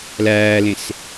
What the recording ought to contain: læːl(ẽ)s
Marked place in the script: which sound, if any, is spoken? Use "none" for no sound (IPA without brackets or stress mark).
ẽ